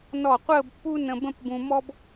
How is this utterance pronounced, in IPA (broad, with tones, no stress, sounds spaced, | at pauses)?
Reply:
n ɔ˧˩ qʷ əː˥˧ b pː u˥ n ə̃˧ b ə̃˥˧ p b ũ˧ m ɔ˥ b